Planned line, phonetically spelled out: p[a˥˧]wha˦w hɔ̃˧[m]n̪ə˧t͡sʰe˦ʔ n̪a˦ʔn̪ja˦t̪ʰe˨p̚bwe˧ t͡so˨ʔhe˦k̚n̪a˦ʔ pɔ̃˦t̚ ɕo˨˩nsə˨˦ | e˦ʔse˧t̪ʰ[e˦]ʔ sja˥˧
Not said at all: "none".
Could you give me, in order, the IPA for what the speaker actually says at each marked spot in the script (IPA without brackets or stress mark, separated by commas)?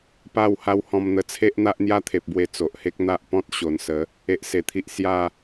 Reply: a˥˧, m, i˦